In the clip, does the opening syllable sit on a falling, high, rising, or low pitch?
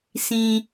low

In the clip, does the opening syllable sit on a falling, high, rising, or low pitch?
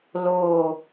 low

